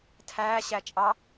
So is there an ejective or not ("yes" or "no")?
yes